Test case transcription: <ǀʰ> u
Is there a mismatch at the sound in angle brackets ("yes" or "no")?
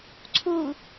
no